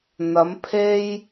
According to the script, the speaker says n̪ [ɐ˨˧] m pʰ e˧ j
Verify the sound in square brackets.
correct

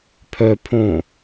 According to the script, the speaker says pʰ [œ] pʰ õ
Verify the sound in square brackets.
correct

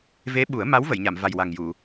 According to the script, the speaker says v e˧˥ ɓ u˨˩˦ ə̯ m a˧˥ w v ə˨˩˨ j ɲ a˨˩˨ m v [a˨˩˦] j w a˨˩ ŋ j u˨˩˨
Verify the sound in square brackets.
incorrect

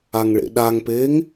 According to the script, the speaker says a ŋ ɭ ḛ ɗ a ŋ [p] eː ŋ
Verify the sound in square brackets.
correct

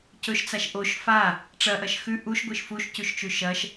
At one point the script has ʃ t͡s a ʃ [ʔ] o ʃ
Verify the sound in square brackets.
correct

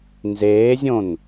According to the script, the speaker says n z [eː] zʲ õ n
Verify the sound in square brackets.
correct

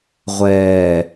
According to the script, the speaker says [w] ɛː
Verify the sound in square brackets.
incorrect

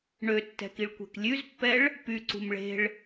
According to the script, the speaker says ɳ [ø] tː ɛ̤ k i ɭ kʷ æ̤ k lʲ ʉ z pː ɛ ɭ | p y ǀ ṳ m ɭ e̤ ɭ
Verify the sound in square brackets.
correct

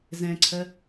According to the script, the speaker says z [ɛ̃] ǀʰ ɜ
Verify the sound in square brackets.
correct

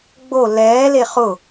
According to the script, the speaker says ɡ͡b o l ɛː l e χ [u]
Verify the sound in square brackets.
incorrect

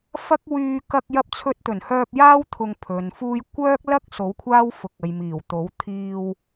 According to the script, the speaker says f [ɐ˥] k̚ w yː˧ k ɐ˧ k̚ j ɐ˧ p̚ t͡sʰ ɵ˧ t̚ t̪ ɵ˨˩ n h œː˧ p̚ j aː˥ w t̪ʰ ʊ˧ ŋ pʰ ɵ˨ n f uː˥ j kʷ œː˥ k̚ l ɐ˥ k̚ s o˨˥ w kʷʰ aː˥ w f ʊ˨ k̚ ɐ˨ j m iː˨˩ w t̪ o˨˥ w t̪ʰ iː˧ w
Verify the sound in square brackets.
correct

